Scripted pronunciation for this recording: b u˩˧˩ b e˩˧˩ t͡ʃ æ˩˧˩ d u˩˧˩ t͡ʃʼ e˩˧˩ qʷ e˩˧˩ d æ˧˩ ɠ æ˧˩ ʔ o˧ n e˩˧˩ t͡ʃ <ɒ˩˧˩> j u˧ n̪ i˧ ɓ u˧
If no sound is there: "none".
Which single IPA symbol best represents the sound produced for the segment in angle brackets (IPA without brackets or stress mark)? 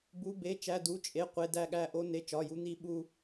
ɒ˩˧˩